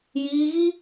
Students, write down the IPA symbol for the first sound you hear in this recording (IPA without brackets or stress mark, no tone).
j